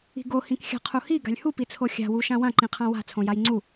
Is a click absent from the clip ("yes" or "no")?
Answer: no